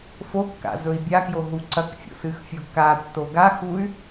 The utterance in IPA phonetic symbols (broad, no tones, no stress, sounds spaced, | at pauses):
f o kː a̰ z ɵ i̯ bʲ a k j o ɦ u ǀ ɐ k fʲ o̰ s ɨ x fʲ o ɡ k a tː o ɡ a x u y̯